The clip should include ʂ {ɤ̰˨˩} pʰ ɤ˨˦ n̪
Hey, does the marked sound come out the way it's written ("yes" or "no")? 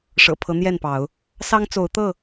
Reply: yes